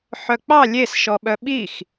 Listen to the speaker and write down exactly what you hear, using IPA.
ħ œ k͡p ɑ lʲ e s ʃ ɔ ɓ œ ɓ i x

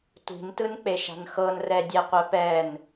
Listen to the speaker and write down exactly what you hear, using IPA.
tʷ i̤ n t ɯ n k͡p e ʃ a̤ n x ɤ n r ɛ dʲ ɛ qʷ ɛ p ɛ n

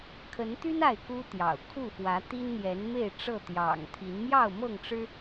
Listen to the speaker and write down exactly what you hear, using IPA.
kʰ ə˨˦ n t̪ y˦ n a˥˨ ɪ̯ k u˦ t̪ j ɑ̰˨˩ ʊ̯ kʰ u˥˨ f w ä˨˦ t̪ i˦ n n̪ j ɛ˨˦ n m e˥˨ ɪ̯ ʈ͡ʂ ɤ˥˨ t̪ j ɑ̰˨˩ ŋ t̪ʰ i˨˦ n m j ɑ˥˨ ʊ̯ m ɤ˥˨ ŋ ʈ͡ʂ ɻ̩˦

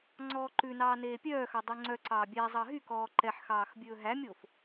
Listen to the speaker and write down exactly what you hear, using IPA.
ŋ͡ǀ ɔː ǃ ʉ n ɑː n eː pʲ œː x ɑ dˤ ʉ ŋ͡ǀ œ ǀ ɑː bʲ æ zˤ ɑ ɦ y k ɔː ǃ ɛ ħ x ɑː x bʲ ɵː ɦ æ mʲ o f

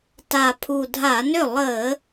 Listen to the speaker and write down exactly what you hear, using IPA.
t a˨˩ pʰ u˨˩ dʱ a˧˩˧ n ʏ˥˩ lˠ əː˧˩˧

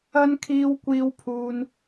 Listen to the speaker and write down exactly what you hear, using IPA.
ɐ˧ n kʰ iː˧ w kʷ iː˧ w pʰ uː˧ n

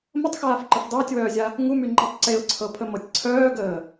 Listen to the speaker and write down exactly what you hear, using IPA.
m ə tˤ x aː f ǃ ə f dˤ əː tʲ w œː zʲ a | ŋ u m y ŋ͡ǃ ɛ tˤ ǀ e ʊ̯ ǀʰ ɤ pʰ ə m ɤ tʲ ǀʰ œː ɡ əː

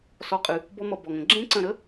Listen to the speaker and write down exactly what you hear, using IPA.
s ɔ˧˩ qʼ ɨ˩ | b ɔ˦˥ m ʌ˧˩ b ɔ˩ ŋ ə̃˩ ɡ͡ǁ ẽ˦˥ ǀ ə̃˧˩ ɾ ə˦˥

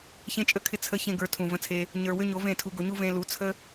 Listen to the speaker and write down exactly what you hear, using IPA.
ç ẽ˦ t͡ʃʼ ə˦ kʰ ɪ˦˨ t͡sʰ ə˧ ç ẽ˦ ɡ ə˞˧ tʰ ũ˨ v ə̃˧ t͡sʰ e˧ | ɲ ə˞˧ w ʏ˦ ɲ o˨˦ v ẽ˦˨ tʰ u˧ ɡ o˧ ɲ u˦ v ẽ˧ l u˨˦ t͡sʰ ə˦

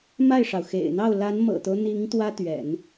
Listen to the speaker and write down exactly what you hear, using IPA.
m a˥˩ ɪ̯ ʂ ɑ˩ ʊ̯ x ḛ˨˩ ɪ̯ n̪ ɑ˥˩ ʊ̯ l a˧˥ n m ɤ̰˨˩ t̪ o˦ ʊ̯ n̪ i˧˥ ŋ t̪ w ä˥ t̪ ɥ ɛ̰˨˩˦ n

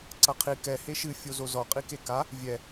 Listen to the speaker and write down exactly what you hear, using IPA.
ǀ ɐ qʰ i k ɛ h e ʃ ɨ fʲ o z o z ɔ qʼ i k e k a | vʲ ɛ

